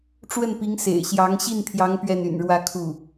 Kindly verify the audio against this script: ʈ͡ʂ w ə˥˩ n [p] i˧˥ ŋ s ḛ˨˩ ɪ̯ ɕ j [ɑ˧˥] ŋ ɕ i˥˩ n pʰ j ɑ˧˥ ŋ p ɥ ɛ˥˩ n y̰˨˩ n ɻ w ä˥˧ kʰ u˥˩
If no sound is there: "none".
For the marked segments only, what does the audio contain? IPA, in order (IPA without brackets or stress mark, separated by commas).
p, ɑ˧˥